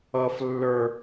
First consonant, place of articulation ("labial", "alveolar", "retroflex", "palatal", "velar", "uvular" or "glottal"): labial